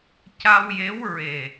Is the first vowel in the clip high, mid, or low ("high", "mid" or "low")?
low